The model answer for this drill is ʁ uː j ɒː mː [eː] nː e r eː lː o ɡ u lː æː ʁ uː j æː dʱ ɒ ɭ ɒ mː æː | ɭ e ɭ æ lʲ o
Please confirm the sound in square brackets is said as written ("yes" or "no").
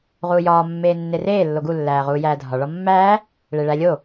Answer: yes